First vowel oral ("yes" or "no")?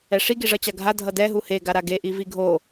yes